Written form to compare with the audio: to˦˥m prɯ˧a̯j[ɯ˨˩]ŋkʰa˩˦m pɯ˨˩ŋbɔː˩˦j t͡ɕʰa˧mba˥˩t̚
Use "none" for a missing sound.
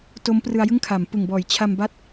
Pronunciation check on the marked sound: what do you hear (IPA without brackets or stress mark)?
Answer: ɯ˥˩